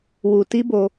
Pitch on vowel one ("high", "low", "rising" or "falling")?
low